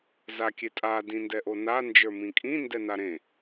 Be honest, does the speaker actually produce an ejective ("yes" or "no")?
yes